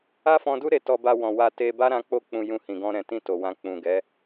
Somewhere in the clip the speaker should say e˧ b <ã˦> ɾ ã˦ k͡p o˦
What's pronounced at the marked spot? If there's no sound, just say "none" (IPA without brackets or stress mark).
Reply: a˦